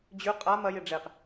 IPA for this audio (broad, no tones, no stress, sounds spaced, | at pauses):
d͡ʑ ʉ qʼ a m ɐ j e ɖ͡ʐ e q